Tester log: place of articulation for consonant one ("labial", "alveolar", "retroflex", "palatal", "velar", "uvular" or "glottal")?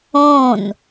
alveolar